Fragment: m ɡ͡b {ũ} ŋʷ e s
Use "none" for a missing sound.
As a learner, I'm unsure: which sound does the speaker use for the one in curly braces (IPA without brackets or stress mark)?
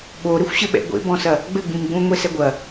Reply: ũ